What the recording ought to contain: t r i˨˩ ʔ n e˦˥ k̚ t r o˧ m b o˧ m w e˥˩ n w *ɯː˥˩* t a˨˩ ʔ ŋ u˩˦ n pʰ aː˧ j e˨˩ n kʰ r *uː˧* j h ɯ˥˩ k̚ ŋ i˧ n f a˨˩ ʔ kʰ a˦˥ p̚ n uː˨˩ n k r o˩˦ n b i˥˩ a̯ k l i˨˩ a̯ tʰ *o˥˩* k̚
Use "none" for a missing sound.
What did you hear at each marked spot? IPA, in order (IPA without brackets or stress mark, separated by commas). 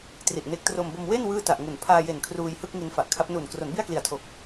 ɯː˥˩, uː˧, o˨˩